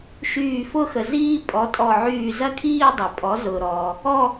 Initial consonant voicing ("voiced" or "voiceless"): voiceless